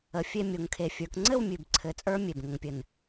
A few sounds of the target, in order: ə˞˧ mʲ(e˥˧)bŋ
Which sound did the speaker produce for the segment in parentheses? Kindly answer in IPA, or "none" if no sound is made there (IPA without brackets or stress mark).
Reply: e˨˩